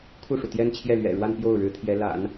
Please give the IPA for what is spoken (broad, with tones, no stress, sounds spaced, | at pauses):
kʰ u˥˩ ʂ u˩ t̪ j ɛ˥ n t͡ɕʰ j ɛ˥˩ l ɥ ɛ̰˨˩ ɻ w a˥˧ n p j o˥˩ ʊ̯ ɻ ɻ̩˧˥ t̪ʰ j ɛ˧˥ l a̰˨˩˦ n